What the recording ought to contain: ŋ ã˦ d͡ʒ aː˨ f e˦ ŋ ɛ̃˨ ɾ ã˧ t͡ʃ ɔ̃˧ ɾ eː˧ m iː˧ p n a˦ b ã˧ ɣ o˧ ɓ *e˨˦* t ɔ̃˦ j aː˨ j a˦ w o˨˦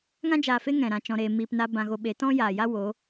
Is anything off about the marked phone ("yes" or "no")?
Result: no